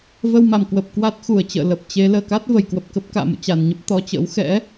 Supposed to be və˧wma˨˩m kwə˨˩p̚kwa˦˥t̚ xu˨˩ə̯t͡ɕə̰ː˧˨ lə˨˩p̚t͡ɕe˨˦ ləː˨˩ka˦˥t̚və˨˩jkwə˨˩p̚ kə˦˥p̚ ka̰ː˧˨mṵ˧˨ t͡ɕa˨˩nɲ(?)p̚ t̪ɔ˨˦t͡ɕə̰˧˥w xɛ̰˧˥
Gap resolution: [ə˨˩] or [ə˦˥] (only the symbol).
ə˦˥